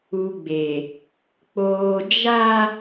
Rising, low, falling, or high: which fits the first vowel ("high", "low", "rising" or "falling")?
low